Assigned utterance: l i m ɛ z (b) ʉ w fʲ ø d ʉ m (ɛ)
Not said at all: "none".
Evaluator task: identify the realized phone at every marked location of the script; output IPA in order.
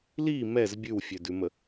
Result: bʲ, ə

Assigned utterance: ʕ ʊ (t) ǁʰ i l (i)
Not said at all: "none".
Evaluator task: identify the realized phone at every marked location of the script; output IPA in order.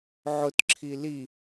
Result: t, i

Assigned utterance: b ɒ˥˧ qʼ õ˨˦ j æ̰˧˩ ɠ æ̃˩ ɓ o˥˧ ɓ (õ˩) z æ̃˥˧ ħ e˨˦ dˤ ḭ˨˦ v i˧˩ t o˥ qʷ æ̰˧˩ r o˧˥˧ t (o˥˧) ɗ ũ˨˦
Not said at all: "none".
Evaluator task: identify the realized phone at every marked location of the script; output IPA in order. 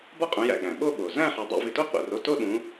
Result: o˩, o˥˧

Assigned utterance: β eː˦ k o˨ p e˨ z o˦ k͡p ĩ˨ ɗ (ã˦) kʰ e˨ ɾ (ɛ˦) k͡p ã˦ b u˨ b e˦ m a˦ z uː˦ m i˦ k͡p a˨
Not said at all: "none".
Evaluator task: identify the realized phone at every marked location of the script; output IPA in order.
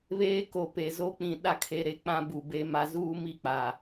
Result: a˦, e˦

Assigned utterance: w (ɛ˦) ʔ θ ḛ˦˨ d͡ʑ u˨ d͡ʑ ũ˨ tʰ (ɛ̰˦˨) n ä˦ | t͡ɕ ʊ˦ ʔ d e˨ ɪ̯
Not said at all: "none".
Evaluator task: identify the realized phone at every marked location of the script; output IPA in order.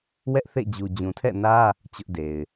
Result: ɛ˦, ɛ̰˦˨

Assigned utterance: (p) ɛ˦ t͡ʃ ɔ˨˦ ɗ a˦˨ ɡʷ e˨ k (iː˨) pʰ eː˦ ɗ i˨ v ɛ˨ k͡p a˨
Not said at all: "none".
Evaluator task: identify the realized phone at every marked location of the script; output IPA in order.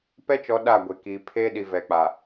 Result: p, iː˨

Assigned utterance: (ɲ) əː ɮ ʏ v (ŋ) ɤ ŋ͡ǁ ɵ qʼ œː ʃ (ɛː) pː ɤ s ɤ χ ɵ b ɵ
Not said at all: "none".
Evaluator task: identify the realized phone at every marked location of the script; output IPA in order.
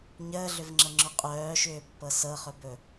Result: ɲ, ŋ͡ǁ, ʏː

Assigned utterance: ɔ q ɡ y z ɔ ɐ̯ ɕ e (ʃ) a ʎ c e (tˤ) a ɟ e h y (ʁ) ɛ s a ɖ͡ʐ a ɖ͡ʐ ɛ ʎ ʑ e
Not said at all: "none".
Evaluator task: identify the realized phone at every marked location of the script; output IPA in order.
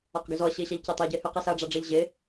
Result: ɕ, tˤ, q

